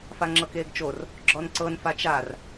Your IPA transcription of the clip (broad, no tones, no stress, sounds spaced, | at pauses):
f a ŋ͡ǁ ɤ k eː ɡ t͡ʃ o r | ɡ͡ǁ ɔ n ǀ ɤ n f a t͡ʃ a r